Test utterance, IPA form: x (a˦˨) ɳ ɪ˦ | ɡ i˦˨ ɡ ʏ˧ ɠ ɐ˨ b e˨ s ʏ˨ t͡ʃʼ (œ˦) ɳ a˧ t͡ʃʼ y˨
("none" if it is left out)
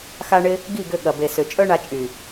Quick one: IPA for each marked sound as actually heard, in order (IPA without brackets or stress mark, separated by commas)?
a˦, œ˦